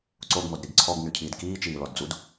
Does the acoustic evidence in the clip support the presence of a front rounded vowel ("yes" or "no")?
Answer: yes